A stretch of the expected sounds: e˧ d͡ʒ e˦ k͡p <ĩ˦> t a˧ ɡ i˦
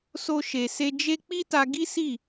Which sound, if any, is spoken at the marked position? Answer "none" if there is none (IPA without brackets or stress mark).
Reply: i˦